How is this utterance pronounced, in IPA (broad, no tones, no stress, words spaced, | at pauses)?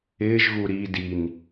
ɪːʒɣu ɾi din